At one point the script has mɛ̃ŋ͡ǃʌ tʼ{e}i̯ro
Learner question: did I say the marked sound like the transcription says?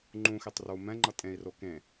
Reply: no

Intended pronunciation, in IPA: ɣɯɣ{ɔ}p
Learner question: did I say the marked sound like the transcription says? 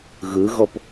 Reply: yes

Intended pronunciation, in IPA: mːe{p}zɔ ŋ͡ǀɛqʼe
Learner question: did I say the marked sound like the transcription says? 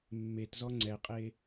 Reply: no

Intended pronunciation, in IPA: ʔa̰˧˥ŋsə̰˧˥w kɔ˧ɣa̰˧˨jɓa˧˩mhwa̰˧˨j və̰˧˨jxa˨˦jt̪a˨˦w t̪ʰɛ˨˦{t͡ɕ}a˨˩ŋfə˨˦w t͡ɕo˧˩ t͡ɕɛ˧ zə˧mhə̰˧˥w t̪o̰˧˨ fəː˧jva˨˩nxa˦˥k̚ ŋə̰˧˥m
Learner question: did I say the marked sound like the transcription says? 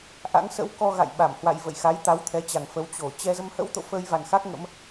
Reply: yes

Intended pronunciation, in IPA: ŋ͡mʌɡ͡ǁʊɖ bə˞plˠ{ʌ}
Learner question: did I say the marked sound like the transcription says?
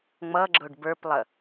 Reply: no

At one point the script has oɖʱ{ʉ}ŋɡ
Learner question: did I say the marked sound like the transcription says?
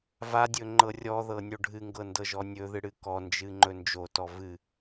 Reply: no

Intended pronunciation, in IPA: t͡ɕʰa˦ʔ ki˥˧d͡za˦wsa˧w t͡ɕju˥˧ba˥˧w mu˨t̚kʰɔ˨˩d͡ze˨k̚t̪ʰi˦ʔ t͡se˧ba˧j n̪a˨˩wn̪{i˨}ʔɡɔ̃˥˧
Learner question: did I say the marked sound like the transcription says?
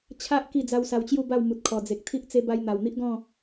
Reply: no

